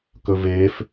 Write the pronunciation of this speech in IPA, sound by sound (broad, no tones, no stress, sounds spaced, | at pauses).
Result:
k ɵ v eː f